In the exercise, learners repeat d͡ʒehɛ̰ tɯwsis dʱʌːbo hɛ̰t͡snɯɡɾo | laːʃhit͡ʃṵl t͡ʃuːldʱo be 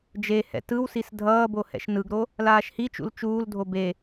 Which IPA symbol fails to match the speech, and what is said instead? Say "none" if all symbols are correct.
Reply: t͡s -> ʃ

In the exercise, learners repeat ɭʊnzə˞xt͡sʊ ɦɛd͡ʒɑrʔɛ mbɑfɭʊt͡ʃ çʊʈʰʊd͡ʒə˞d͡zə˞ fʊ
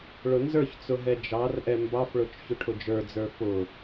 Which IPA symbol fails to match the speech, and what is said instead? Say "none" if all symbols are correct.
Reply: x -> ç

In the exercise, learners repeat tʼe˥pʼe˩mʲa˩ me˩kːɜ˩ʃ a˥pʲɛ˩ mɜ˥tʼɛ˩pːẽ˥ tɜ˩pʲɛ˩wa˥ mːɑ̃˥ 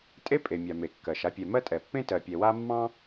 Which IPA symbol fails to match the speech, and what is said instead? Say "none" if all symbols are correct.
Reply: none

